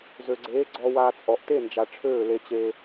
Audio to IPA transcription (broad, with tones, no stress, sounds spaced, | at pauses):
z ø˨ ɡ͡ǀ eː˨˦ ɡ͡ǀ ɔ˧ w aː˧ t͡sʼ ɔ˨ ʔ t e˦˨ n d͡ʒ a˨ ʈ͡ʂʰ øː˦˨ l e˧ t͡ɕ eː˧